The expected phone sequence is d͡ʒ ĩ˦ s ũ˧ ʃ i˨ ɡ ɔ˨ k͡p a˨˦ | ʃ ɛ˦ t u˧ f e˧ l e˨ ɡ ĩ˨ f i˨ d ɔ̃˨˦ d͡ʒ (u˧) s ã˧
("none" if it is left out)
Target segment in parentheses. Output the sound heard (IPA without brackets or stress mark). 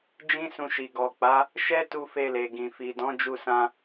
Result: u˧